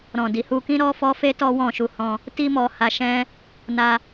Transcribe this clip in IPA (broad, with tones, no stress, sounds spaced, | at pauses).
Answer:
ɾ ɔ̃˨ d i˨ h u˧ k ĩ˦ ɾ ɔ˦ f ɔ˦ f e˦ t ɔ˦ w ɔ̃˦˨ ʃ u˧ h ɔ̃˧ | t i˦ m ɔ˧ h a˧ ʃ ɛ̃˦ | n a˦